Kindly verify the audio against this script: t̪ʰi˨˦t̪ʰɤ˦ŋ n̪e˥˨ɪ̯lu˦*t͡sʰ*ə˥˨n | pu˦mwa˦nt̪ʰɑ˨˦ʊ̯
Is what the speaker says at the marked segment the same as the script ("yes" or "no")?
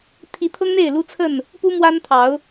yes